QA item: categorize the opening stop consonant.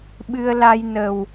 implosive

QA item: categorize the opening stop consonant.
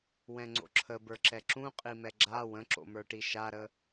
click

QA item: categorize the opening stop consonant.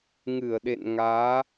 implosive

